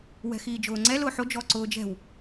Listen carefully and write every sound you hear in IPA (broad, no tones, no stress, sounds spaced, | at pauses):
w ɛ̤ x iː d͡ʒ ʊː ŋ͡ǀ ɛ l ʊː ħ o d͡ʒ ɔ ǀ ʊː d͡ʒ ɛ̤ w